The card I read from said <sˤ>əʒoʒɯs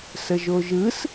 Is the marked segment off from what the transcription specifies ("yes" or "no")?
yes